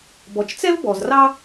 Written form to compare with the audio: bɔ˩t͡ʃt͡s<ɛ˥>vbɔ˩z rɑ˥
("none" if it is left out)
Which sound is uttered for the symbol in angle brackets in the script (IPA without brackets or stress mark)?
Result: ɛ˥